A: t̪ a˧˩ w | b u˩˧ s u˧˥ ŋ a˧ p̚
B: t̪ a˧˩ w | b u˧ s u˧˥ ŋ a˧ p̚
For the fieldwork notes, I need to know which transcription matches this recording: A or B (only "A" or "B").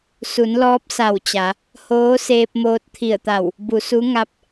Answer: A